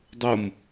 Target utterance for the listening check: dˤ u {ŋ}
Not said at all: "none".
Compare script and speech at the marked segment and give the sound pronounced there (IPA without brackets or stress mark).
m